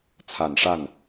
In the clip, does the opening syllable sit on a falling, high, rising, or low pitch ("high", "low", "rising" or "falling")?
low